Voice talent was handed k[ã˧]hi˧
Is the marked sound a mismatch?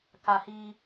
yes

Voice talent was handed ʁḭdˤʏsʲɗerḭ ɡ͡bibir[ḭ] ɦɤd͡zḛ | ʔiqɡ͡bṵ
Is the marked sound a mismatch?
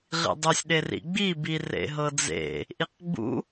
yes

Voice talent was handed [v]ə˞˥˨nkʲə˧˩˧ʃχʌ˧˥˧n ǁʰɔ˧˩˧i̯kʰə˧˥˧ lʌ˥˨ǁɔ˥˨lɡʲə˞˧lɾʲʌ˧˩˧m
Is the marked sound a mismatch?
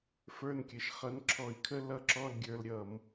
yes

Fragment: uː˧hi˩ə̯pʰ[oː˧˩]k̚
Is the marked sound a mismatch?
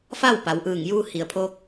yes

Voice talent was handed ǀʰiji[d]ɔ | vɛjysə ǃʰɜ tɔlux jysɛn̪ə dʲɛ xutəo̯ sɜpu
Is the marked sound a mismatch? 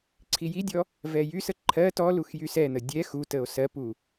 yes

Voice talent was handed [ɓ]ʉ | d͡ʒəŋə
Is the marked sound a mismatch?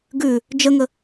yes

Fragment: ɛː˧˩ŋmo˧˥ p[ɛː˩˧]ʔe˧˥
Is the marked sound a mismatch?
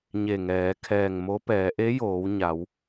no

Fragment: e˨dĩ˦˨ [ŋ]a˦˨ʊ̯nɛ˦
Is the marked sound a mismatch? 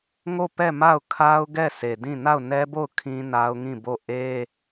yes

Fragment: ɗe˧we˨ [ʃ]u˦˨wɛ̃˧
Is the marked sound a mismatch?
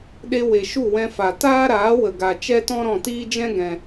no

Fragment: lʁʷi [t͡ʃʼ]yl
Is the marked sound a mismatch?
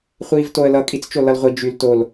yes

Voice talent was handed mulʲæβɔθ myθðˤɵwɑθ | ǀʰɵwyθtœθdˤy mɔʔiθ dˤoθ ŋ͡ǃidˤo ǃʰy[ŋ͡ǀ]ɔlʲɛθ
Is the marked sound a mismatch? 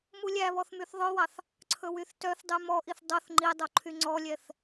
no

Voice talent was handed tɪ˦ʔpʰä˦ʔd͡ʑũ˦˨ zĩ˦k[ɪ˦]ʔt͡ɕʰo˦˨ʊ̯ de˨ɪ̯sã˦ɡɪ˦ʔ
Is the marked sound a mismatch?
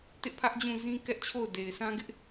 yes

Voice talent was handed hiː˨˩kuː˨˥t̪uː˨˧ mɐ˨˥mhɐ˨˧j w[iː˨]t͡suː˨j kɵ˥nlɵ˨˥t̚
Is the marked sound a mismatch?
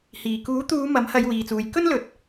no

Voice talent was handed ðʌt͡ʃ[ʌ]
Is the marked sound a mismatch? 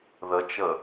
no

